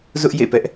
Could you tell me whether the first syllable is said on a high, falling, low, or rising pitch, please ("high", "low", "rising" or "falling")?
high